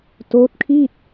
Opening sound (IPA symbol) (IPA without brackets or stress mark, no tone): t